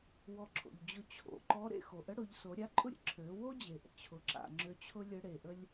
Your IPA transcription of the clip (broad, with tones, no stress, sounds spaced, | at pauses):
w ɔ˧ ǁʰ o̰˩ ʎ d͡ʑ ʊ˧ t͡ɕʰ o̰˩ ǃ ɔ˧˥ ɾ ḛ˧ x o˩ ʔ ə˧˥ ɽ ʊ˩˧ ʎ s o˩˧ ɾʲ a˧˥ ǃʼ ʊ˥ ɾʲ ə̰˥ ǁʰ ø˩˧ w o˥ d͡ʑ e˩ ʔ ə̰˩ t͡ɕʰ ʊ˩ ǁ a̰˩ ŋ͡ǁ ø˧˥ t͡ɕʰ ʊ˥ lʲ ə˧˥ ɽ e˩ ʔ ə˥ lʲ